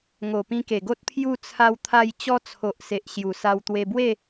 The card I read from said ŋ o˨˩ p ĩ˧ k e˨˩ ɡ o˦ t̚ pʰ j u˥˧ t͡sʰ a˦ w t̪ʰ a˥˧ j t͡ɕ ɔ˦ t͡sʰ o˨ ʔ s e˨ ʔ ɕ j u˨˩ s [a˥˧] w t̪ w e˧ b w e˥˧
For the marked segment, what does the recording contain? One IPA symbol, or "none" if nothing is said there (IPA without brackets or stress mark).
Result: a˧